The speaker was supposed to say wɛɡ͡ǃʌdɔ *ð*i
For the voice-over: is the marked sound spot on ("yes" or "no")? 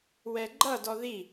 yes